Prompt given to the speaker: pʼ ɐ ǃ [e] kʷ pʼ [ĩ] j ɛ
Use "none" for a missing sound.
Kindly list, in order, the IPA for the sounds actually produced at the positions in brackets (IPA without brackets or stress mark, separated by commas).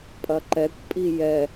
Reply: ɛ, i